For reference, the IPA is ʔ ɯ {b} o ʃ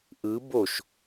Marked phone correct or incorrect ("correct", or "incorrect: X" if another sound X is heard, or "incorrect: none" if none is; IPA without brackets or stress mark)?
correct